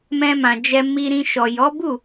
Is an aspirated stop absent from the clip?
yes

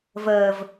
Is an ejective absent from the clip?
yes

